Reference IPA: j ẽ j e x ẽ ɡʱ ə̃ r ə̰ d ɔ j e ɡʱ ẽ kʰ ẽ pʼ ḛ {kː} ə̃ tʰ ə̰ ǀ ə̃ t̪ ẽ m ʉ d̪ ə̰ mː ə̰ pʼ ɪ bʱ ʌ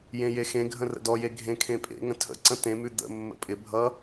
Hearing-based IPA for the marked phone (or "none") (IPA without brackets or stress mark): ŋ